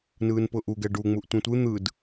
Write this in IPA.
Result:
n ɯː n p ʊː ʔ u ɡ ɛ ɖ u ŋ͡m u ʔ tʷ ẽ tʷ ɯ n̪ ɯ d

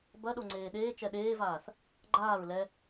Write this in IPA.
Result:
b ɐ ɗ o ŋ͡ǀ eː ɗ eː t͡ʃ ɛ ɗ eː v aː θ | ɡ͡ǃ aː ɹ l ɛ

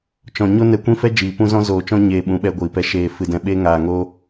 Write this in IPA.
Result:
t͡ʃ ɔ̃˨ ɲ o˦ n ɛ˧ kʷ ĩ˦ f ɛ˦ d͡ʒ iː˨ p ũ˦ z ɔ̃˦ z oː˧ t͡ʃ ɔ̃˦ ɲ eː˧ ɓ ũ˨˦ ɓ ɛ˧ ɡʷ iː˨ p ɛ˧ ʃ eː˧ f ɨ˧ d ɛ̃˧ ɓ eː˦ ŋ aː˧ ŋ oː˦

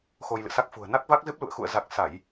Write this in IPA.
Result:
x o˧ j l ɨ̰˧˨ s a˦˥ k̚ f ṳ˨˩ ə̯ n a˦˥ k̚ v a˦˥ k̚ z ɨ˦˥ p̚ l ṵ˧˨ ə̯ x ṵ˧˨ ə̯ z a˨˩ k̚ s a˧˩˨ j

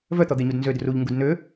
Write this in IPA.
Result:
v œ t̪ ɔ d̪ e ɲ u d n z ø d r u ʎ ŋ ɡ u d n ø

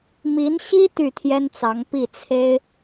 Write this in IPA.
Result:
m i˧˥ n ɕ i˥ t̪ y˥˩ t̪ʰ j ɛ˥ n t͡s ɑ˧˥ ŋ p i˥˩ t͡sʰ e˥ ɪ̯

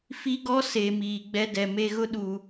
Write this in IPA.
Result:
f i˦ ɡ ɔ˦ s e˨ m iː˨ ɡ͡b ɛ˦ d ɛ˨ m e˦ ɣ ʊ˦ ɗ uː˨

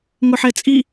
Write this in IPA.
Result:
ŋ ʊ ħ ɛ t͡sʼ i

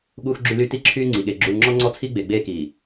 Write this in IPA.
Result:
ɠ uː˨ x ɡ͡ǁ y˨ l y˨ t i˦ ǁʰ yː˦ ŋ͡ǀ i˨ ɠ e˨ ɡ͡ǁ uː˨ ŋ͡ǁ ɔ˦ ŋ͡ǀ ɔ˦ t͡sʰ i˦ ɡ͡b e˨ ɡ͡b eː˦ k iː˨

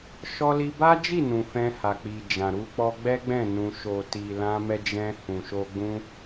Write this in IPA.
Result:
ʃ ɔ˧ l i˧ b a˦ d͡ʒ i˦˨ n ũ˨ f ɛ̃˧ h a˨ k͡p i˨ d͡ʒ ã˨ ɾ u˧ k͡p ɔ˧ ɡ͡b ɛ˦ ɡ͡b ɛ̃˦˨ n ũ˧ ʃ o˨ t i˨ l ã˧ m ɛ˧ d͡ʒ ɛ̃˧ h ũ˨ ʃ o˧ ɡ͡b ũ˦

